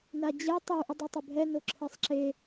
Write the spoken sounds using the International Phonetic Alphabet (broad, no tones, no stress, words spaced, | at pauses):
nad͡ʑɛ tˤu ʔʏdˤutˤʏbʱɛ noǁʰesˤǁe